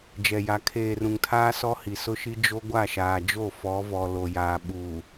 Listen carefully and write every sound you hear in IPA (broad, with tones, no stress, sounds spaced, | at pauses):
d͡ʒ ɛ˨ j a˨ kʰ eː˨ r ũ˨ ŋ tʰ aː˦ s ɔ˦ h i˨ s ʊ˦ ʃ i˦ d͡ʒ o˦ ɡʷ a˦˨ ʃ aː˨ d͡ʒ o˦˨ f ɔ˨˦ v ɔ˨ l o˨ j aː˨ ɓ uː˨